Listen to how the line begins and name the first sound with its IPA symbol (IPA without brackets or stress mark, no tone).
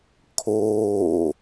kʰ